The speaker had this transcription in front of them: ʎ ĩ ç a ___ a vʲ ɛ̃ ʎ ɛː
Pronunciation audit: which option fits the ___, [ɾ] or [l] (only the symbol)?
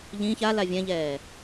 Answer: l